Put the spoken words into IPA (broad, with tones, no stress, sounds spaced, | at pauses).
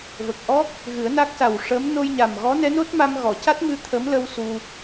v ə˨˩ k̚ ʔ ɔ˦˥ k̚ | ɣ ɨ˨˩˦ ə̯ n a˦˥ k̚ s a˨˩ w ʂ ə˧˥ m n o˧ j ɲ a˨˩ m ɣ ɔ˧˥ n ɛ˧˥ n o˦˥ t̚ m a˧ m ɣ ɔ˨˩˨ c a˦˥ t̚ m ɨ˧˥ t̪ʰ ə˧˥ m l ə˧ w s u˧